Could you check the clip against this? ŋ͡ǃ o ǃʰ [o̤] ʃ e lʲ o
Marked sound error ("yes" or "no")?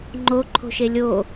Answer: no